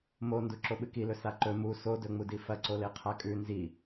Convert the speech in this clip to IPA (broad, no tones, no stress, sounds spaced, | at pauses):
m o n d u ǁ o ɓ ɨ k i l ɵ s a ǃ ɵ m u s o d ɵ ŋ͡m u d i f ɐ ǀ o l e qʰ a kʼ ʉ n z i